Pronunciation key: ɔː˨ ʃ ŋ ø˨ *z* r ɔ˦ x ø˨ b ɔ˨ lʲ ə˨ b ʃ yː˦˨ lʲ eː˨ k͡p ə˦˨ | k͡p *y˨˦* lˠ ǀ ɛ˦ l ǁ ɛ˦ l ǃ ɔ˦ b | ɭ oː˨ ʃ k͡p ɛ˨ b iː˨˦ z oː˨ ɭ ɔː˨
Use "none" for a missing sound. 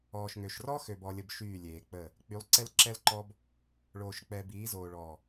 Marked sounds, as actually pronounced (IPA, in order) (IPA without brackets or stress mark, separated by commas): ʃ, y˨˦